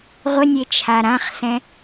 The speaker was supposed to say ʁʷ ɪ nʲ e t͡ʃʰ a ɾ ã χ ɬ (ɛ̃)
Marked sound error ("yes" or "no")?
no